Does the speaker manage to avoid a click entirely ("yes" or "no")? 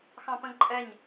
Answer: no